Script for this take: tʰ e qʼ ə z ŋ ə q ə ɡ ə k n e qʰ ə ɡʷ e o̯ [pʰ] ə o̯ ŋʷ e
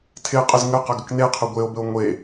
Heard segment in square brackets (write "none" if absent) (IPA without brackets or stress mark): b